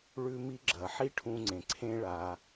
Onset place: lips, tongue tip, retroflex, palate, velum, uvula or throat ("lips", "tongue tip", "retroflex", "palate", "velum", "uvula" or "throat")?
retroflex